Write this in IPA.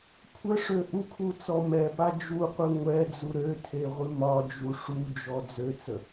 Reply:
kʷʰ ə ʂ ø ʔ u kʰ u t͡s ɔ m ɛ p a d͡ʒ u qʷ ɨ ŋʷ ɛ d͡z u ɾ ø tʰ e ʁʷ ɨ m ɒ d͡ʒ u ʂ u d͡ʒ ɔ d͡z ø t͡s ə

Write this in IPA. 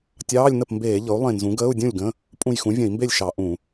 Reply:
tʲ ɑː˧˥˧ lʲ n ə˥˩ p m b eː˧˩˧ ʎ ɤ˩˥ u̯ lˠ ẽ˧˩ n z ũ˩˥ ɡ əː˧˥˧ u̯ dʲ ũ˥˩ lʲ ɡ ə̃˧˥˧ | pʼ ũ˧˩ j x ũ˩˥ vʲ ə̃˧˩˧ i̯ m b e˥˩ lʲ ʃ ɑ˧˩˧ ʔ ũ˧˩˧

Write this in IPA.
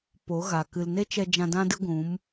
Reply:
p o˨˦ ɣ a˨ k ɨ˨ l n e˦ t͡ʃ ɛ˧ d͡ʒ ã˧ d ã˦ d ɨ˦ ɡʷ ũ˨˦ m

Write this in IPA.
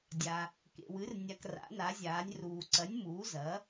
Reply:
dʲ a˩ | k ḛ˩ w ɨ˩˧ r nʲ a˩ k r a̰˩˧ n a˩˧ zʲ aː˩˧ nʲ r uː˩ ǀ ɐ˩˧ nʲ m uː˩˧ z ɐ˩˧

